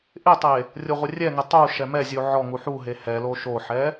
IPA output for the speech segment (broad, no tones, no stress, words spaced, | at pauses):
ʔɪtˤe | rʲoʁʷɪrʲɛŋɪ tˤu ʃɛmɛzʲu ʕɔŋu ħuɦe hɛlo ʃoħɛ